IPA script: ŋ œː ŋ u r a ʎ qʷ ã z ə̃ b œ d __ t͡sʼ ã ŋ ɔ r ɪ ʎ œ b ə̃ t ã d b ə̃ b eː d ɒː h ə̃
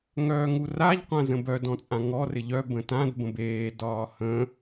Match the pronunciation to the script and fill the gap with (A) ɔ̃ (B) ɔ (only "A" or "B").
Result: A